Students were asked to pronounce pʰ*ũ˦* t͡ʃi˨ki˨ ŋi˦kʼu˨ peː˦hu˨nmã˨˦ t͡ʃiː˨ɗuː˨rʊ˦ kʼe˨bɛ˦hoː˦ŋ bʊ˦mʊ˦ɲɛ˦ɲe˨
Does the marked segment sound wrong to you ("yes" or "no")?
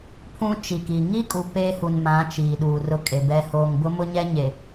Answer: no